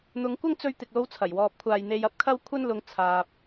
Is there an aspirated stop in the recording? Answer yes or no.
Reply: yes